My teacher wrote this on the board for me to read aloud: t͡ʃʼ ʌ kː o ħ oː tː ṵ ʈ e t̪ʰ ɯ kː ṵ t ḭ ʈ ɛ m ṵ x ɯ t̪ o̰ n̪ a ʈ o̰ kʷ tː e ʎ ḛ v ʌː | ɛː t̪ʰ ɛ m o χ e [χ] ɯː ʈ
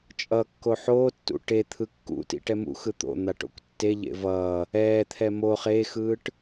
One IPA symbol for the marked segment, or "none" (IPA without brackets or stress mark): x